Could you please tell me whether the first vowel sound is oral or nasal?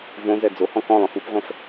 nasal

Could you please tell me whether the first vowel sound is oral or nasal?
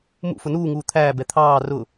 oral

